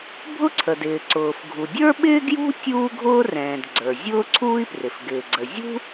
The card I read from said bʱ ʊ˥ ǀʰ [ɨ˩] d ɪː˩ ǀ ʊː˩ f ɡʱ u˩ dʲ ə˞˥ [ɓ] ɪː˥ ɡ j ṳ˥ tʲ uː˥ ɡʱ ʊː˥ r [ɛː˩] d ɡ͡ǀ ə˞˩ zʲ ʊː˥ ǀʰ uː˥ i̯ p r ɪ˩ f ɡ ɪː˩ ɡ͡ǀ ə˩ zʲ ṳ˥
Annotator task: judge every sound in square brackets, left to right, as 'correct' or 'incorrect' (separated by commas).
incorrect, correct, incorrect